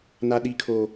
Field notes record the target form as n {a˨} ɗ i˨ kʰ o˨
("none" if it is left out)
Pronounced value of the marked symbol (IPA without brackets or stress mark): a˨